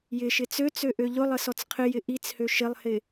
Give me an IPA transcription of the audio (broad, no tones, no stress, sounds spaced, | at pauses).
j ɪ ʃ ɪ t͡s ø t͡s ø ʔ ø ʎ ʊ lˠ ə s ɔ t͡s qʰ ɪ j ɪ ʔ i t͡s h ø ʃ ɪ lˠ h ɪ